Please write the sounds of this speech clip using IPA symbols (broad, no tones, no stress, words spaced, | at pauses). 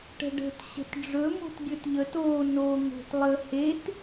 ʈə̤ɖə̤t ɕə̤tɖ͡ʐɵ mo̤tɡʲɵtʎət o no ŋo̤tlˠə het